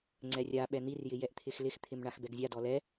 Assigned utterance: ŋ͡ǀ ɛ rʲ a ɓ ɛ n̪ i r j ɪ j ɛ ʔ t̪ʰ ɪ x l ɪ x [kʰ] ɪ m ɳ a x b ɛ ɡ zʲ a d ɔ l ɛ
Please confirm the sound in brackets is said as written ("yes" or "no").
no